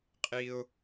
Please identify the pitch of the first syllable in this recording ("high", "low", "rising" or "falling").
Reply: high